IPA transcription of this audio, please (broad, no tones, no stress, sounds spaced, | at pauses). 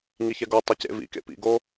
ŋ i ç ɛ ɡ o tˤ i c ḛ v ḭ k ḛ p ḭ ɡ o